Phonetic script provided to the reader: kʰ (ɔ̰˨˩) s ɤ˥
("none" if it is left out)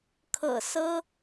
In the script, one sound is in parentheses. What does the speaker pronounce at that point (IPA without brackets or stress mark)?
ɤ̰˨˩